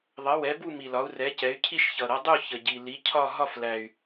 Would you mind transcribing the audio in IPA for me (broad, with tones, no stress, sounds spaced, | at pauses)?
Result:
ðˤ ʌ˩˥ w ɛ˩˥ b u˥˨ m i˨˩ l ɒ˩˥ u̯ r ɛ˩˥ c ɛ˩˥ y̯ cʰ i˥˨ ʃ ç ʌ˨˩ ɾ ʌ˩˥ dˤ u˥˨ ç ə˨˩ ɟ i˨˩ l i˩˥ cʰ ɒ˥˨ ɦ ɒ˥˨ f l æ˨˩ y̯